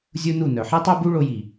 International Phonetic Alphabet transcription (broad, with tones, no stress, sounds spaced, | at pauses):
zʲ u˦ n u˦˨ n œ˨ ħ i˦ tˤ œ˦ b u˦ ɭ o˧ j i˨